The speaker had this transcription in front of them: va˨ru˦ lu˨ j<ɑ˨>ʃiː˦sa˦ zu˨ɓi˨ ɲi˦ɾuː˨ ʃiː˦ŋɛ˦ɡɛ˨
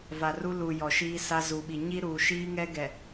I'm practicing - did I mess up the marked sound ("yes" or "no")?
yes